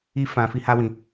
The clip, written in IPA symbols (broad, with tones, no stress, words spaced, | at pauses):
i˦ fã˦ fi˦ha˦wĩ˧